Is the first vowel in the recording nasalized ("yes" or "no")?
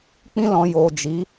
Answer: yes